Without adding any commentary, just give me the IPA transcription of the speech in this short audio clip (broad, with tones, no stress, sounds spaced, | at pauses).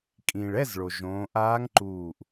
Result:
kʼ ĩ˩ ɭ ɛ˧˥˧ z ɭ o˩ ʒ õː˩˧ ʔ aː˧˥ ŋ ǃ uː˧˩ ʔ